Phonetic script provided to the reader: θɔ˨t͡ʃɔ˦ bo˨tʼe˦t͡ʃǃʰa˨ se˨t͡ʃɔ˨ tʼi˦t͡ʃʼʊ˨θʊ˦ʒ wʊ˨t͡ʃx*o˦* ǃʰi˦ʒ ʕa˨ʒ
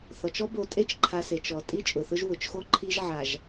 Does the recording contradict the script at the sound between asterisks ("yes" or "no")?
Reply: no